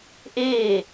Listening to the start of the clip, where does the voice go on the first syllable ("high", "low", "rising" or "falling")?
falling